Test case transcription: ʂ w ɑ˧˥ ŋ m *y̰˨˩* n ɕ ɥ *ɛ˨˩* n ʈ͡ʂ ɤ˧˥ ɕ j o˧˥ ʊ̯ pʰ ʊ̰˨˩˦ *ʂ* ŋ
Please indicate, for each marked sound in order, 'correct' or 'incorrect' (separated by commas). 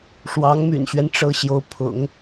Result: correct, incorrect, incorrect